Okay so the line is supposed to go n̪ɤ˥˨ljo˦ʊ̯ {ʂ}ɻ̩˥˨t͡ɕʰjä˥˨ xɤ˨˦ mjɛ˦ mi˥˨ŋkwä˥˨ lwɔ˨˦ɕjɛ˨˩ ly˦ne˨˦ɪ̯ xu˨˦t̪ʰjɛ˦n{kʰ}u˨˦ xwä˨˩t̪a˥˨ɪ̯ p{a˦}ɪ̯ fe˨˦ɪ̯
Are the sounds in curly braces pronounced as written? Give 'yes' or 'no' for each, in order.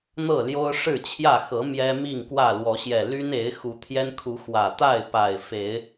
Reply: yes, yes, no

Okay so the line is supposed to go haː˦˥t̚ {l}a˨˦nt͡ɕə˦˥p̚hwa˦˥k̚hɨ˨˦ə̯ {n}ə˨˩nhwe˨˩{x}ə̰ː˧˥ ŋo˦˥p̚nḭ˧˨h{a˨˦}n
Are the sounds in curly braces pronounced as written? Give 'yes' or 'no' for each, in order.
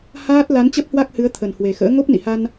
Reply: yes, no, yes, no

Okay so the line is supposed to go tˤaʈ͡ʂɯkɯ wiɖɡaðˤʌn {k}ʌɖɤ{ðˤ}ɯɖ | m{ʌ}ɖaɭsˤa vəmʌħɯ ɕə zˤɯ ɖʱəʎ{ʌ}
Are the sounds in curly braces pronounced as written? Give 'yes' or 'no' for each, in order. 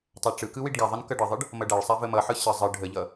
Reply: yes, yes, yes, yes

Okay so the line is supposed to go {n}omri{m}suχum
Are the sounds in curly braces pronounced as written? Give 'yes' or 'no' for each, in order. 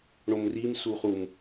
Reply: no, yes

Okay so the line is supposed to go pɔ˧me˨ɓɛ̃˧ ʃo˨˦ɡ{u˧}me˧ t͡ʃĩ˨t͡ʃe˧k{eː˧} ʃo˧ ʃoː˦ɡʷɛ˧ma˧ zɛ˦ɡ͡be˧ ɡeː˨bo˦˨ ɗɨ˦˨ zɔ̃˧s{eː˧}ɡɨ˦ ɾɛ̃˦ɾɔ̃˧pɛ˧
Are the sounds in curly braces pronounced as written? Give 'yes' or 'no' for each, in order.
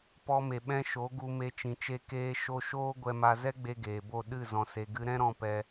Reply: yes, yes, no

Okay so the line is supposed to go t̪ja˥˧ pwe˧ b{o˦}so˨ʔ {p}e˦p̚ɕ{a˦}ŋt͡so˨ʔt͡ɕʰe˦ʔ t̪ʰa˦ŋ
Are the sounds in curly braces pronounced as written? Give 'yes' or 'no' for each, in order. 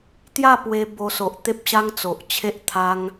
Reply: no, no, yes

